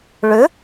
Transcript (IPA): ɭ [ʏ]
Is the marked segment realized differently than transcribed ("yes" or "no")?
no